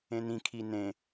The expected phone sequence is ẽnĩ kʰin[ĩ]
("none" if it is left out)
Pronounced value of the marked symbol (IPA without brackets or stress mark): ẽ